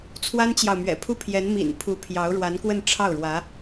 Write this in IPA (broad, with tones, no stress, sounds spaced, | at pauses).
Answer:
t͡sʰ w a˥ n t͡ɕ j ɑ˨ ʊ̯ m ɥ ɛ̰˨˩ pʰ u˥˩ pʰ j ɛ˧˥ n m ḭ˨˩ n pʰ u˧˥ pʰ j ɑ˧˥ ʊ̯ ɻ w a˧˥ n k w ə˥˧ n ʈ͡ʂʰ ɑ˥˩ ʊ̯ ɻ w ä˧˥